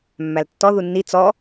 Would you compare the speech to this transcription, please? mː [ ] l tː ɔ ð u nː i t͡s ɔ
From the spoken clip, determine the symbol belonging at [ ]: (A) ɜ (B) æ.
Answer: B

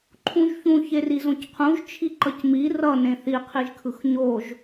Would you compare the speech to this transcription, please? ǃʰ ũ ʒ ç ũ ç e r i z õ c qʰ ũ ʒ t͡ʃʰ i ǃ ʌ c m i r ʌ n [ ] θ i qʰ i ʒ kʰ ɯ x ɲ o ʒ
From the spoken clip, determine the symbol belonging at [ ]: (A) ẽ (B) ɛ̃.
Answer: A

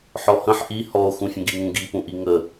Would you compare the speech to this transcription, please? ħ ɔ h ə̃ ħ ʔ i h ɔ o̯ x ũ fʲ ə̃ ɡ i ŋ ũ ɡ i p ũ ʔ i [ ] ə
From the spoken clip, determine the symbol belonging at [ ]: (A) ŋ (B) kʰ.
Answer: A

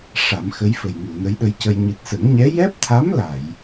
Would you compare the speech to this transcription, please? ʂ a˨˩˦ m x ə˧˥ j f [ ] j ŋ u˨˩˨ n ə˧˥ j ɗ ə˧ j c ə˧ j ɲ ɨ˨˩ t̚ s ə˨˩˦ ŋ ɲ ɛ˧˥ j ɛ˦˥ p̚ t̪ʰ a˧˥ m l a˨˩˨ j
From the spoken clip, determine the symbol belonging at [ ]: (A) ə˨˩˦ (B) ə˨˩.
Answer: B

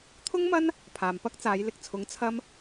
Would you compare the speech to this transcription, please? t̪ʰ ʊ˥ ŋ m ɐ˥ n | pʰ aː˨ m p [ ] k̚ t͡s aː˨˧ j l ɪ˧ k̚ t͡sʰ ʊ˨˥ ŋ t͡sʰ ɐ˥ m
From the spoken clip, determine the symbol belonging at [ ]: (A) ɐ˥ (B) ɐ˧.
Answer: A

